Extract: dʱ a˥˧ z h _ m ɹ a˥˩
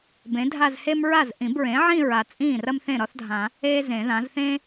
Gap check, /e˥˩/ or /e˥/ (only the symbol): e˥